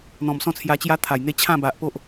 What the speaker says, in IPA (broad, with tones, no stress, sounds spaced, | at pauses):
n̪ ɔ̃˨˩ m s ɔ̃˥˧ t͡sʰ j a˧ t͡ɕ j a˦ t̪ʰ a˨˩ j n̪ e˦ t͡ɕʰ ã˥˧ b a˨ ʔ p o˦ ʔ